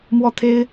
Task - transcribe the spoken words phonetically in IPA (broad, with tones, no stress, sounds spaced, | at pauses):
m w ɔ˥ t̪ʰ e˥ ɪ̯